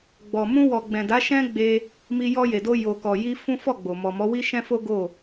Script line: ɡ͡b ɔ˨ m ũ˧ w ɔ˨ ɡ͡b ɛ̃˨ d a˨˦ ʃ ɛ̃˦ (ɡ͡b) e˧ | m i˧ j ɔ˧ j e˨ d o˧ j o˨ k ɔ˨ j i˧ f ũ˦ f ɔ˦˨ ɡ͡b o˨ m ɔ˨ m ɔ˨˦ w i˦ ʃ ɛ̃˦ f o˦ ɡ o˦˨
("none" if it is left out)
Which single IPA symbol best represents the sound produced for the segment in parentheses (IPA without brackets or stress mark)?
ɡ͡b